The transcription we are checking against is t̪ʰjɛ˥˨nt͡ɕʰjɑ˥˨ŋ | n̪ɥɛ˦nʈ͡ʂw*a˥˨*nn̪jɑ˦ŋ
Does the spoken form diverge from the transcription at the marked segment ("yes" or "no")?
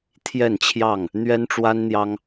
yes